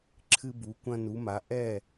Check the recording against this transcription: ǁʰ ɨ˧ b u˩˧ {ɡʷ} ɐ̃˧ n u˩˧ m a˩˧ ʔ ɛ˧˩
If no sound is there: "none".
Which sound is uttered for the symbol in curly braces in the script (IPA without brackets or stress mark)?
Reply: kʷ